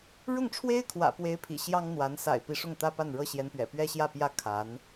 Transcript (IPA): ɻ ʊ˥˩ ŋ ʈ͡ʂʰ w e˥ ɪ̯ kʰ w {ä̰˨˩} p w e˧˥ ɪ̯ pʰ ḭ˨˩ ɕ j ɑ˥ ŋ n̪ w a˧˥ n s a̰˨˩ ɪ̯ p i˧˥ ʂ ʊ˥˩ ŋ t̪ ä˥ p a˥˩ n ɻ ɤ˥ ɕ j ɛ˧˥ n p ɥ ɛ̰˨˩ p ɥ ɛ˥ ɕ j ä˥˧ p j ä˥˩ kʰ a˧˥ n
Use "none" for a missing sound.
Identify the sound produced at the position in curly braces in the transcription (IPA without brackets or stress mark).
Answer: ä̰˨˩